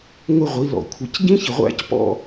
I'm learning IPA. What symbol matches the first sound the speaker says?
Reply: ŋʷ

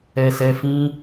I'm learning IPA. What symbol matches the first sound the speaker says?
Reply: ɛ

